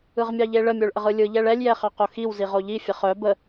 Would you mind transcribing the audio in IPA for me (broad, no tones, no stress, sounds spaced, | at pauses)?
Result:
ɯ ʁ mʲ ɑ ʎ e ɭ ə mʲ o ɭ ʔ ə ʁ ɯ lʲ ɯ ʎ ɛ ɭ ɛ lʲ j ɛ χ ɑ q o x i w z i ʁ o ʎ i fʲ ə χ œ b ə